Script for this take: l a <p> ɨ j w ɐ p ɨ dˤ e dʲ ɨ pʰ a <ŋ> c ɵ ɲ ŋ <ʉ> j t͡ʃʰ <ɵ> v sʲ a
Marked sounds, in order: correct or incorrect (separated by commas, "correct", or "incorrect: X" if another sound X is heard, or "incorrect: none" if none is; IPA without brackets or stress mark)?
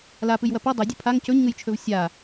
correct, correct, incorrect: ɨ, correct